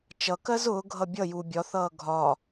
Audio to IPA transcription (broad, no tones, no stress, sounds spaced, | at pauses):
t͡ʃ ʌ k ɜ z ʊː ɡʱ ʌ bʲ ʌ j u bʲ ɒ θ ʌː ɡʱ ɒ